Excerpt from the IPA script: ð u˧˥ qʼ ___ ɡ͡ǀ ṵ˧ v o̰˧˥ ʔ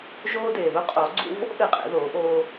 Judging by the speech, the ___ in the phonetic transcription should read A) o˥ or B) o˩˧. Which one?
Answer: B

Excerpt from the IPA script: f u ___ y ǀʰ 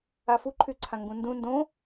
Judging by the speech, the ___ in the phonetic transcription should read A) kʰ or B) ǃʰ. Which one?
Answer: B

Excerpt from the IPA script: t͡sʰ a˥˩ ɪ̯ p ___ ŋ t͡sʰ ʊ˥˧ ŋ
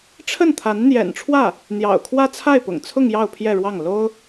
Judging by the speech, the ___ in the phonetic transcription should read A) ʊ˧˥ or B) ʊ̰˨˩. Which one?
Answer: B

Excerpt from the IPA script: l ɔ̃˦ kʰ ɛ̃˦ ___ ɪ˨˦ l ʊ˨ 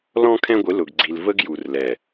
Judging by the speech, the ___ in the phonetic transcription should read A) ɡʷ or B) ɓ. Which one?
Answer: A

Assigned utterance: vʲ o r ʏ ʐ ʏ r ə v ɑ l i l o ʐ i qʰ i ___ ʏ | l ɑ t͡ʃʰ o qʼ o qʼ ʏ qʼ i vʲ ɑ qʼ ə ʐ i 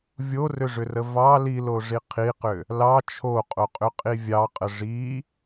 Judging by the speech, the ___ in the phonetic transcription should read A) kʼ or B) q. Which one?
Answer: B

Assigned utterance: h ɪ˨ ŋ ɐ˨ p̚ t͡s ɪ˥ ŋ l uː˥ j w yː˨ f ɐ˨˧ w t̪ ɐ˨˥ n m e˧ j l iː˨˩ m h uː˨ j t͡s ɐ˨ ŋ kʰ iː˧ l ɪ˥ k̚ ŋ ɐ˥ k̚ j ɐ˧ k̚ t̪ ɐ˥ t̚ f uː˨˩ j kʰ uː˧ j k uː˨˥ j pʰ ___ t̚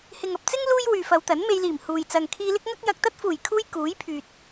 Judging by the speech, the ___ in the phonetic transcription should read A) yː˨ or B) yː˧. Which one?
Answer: A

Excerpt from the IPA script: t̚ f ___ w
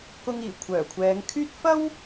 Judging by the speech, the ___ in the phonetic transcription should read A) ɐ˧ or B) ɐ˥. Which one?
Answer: B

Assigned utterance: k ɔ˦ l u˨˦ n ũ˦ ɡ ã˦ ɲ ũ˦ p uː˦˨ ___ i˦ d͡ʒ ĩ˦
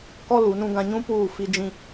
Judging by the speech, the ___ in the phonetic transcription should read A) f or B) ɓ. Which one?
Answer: A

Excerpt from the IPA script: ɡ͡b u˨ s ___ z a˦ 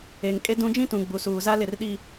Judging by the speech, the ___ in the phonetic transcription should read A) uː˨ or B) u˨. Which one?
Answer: A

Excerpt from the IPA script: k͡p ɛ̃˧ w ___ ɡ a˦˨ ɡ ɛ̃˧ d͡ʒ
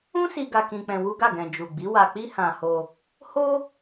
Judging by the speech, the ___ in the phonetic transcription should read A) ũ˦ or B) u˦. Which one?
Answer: B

